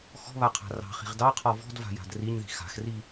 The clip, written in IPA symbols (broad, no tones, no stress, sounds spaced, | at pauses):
x ɔ̤ β a qʰ a̤ r ɑ̤ χ i̤ ʁ d ɑ qʰ ɔ v ɔ̤ d v a̤ j a̤ d r i ɲ ð i̤ x a̤ x r i